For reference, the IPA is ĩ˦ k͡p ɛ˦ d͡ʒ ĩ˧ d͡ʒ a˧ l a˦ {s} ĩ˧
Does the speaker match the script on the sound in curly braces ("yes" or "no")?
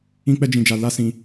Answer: yes